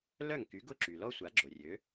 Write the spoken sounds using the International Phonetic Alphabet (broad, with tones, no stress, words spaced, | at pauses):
lœ˥˩ŋky˩˥ɡʊ˥˩ ǁy˩lɔ˥sʷa˩˥ ɡ͡ǁo˩rʲø˩˥